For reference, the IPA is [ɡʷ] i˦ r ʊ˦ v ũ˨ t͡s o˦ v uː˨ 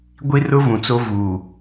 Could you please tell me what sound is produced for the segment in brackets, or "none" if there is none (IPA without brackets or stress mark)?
ɡʷ